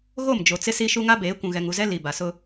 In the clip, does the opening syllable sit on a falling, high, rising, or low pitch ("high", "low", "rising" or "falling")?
falling